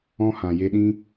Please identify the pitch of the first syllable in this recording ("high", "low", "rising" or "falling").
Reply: high